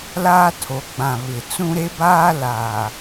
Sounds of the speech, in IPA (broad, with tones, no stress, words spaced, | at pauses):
laː˦tʰo˨˦ ɡ͡bã˨ βɪ˨ t͡sũ˦ɾe˦baː˦ laː˨